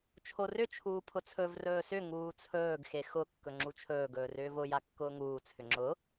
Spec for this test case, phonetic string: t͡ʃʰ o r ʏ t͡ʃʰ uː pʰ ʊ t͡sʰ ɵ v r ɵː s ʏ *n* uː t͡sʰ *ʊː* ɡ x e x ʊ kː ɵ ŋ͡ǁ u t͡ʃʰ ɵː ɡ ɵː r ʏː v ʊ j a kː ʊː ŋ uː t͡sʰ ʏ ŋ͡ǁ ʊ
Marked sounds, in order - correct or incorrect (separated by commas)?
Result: incorrect, incorrect